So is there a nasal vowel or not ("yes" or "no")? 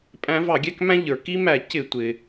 yes